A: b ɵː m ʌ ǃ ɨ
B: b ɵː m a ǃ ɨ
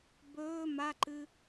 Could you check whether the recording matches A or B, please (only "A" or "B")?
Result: B